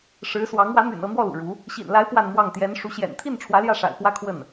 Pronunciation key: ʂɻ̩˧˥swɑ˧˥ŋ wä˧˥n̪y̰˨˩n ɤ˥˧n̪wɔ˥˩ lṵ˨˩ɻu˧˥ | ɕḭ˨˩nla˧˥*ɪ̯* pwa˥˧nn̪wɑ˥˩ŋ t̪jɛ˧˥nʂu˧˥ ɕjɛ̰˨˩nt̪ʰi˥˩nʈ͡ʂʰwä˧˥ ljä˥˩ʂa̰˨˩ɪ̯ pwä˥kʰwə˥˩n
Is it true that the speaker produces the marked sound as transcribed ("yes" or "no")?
yes